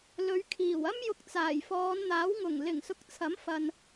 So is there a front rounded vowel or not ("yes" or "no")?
no